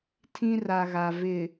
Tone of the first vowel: high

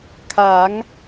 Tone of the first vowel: rising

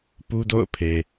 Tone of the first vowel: high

